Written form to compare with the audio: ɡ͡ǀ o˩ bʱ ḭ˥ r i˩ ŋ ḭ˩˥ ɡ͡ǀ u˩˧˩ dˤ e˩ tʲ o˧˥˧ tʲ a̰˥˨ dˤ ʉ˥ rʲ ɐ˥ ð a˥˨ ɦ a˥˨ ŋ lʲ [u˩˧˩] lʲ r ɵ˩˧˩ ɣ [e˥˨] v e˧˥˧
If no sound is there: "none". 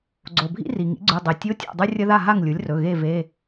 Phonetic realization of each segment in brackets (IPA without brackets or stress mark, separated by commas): u˩˥, e˥˨